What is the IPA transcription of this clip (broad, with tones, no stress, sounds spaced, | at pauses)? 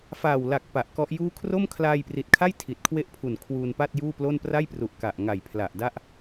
f aː˨˩ w l a˨˩ k̚ p a˨˩ ʔ k ɔ˦˥ ʔ j uː˥˩ kʰ r o˥˩ m kʰ l aː˧ j p r i˨˩ t̚ kʰ a˥˩ j tʰ i˨˩ t̚ kʰ w e˥˩ ʔ pʰ u˨˩ n kʰ w uː˧ n p a˥˩ t̚ j uː˥˩ p l o˥˩ n p r a˥˩ j p r u˨˩ ʔ k a˨˩ ʔ ŋ a˨˩ j pʰ l a˨˩ ʔ d a˥˩ ʔ